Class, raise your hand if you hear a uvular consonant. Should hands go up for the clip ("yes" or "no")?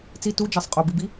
yes